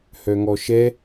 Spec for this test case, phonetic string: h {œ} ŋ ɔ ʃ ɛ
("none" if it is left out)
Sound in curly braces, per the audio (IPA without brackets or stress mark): œ